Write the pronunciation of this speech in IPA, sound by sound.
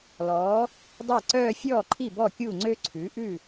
l ɔː˩˥ | dˤ e˥˩ ǀ œː˥˧ fʲ ɔː˥˩ ǃʰ i˥˩ b ɔ˥˩ kʲ uː˥˩ ŋ͡ǀ ø˥˧ ǀʰ ʉ˩˥ ʔ ʉ˥˩

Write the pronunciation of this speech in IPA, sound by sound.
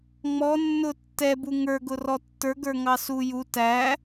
ŋ͡m ɔ nː ʊ tː ɛ b u ŋ ə˞ ɡ ʊ r ɔ tː ə˞ ɡ ə˞ ŋ ɑ s u j u t æ

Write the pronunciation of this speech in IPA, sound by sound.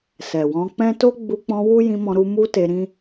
s ɛ˨ w ɔ̃˧ k͡p ɛ̃˦ t o˦ ɡ͡b u˧ k͡p ɔ̃˧ w u˦ j ĩ˧ m ɔ̃˧ ɾ u˧ m u˦ t e˧ ɾ ĩ˦

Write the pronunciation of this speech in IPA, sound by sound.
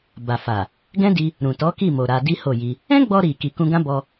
b a˨ f a˨ | ɡ ɛ̃˦ d i˧ | ɾ ũ˨ t ɔ˨˦ k i˦˨ m o˨ ɾ a˧ d i˦ h o˦˨ j i˧ | ɛ̃˦ ɡ͡b ɔ˧ ɾ i˨ k i˨ k ũ˧ ɡ ã˦ b ɔ˧

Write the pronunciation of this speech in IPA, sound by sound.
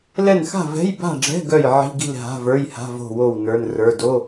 l ɛ˥˨ n x a̤˥˨ v ɛ̤˧˥˧ j b a̤˥˨ ɖ͡ʐ ɛ̤˧˥˧ ɡ œ˥˨ j ʕ i̤˧˥˧ ɡ i̤˥˨ l ɦ a̤˧˥˧ v ə˞˧˥˧ j h a̤˧˥˧ v o̤˥˨ w o˥˨ w n ə˞˧˥˧ n r ə˞˧˥˧ d o˧˥˧

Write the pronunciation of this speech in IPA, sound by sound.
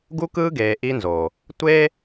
ɡ u˦ k ɯː˦ ɡ eː˨ ʔ i˦ n z oː˨ | tʷ eː˦

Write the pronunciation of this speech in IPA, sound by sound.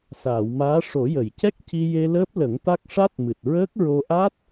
s aː˨˩˨ w m aː˧˥ ʂ o˨˩˦ j ə˨˩˨ j c ɛ˦˥ k̚ c i˧ j e˧ l əː˦˥ p̚ l ə˨˩˦ ŋ t̪ a˦˥ k̚ ʂ a˦˥ t̚ m ɨ˨˩ t̚ ɹ əː˦˥ k̚ ɹ o˧ ʔ a˦˥ t̚

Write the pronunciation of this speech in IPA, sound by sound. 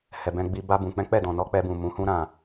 h ɛ˨ b ɛ̃˧ ɡ͡b i˧ b a˧ b ũ˨ k͡p ɛ̃˨˦ k͡p ɛ˦˨ d ɔ̃˨ n ɔ˨˦ k͡p ɛ˧ b ũ˨ m ũ˨˦ h ũ˦ ɾ ã˦˨

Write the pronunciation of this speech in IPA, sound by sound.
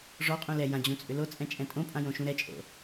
ʐ ɔ qʼ ũ l ɛ j ã d͡ʑ ũ t͡sʼ ʏ l o t͡sʼ ɛ̃ t͡ʃʼ ɛ̃ tʼ õ pʼ ã j õ ʃ ũ ɾ ɛ t͡ʃʼ o̰

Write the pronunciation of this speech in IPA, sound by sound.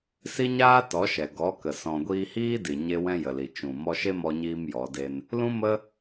s i˦ ɲ aː˦ t ɔ˨˦ ʃ ɛ˨ ɡ ɔ˨˦ k ə˨ s ɔ̃˨ ɡʷ iː˧ h iː˦ d i˨ ɲ e˦ w ɛ̃˦ j ə˨ l i˨ t͡ʃ ũ˨ m ɔ˧ ʃ e˦ m ɔ˧ ɲ iː˧ m j ɔ˨˦ d e˦ n | l ũ˦ m ə˦

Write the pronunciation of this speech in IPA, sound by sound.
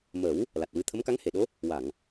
m ə˨˩˦ w | l a˨˩ t̚ w ɨ˧ t̪ʰ ə˧˥ m k a˧˥ ŋ h e˨˩˨ ɗ o˧˥ | w a˨˩˨ ŋ

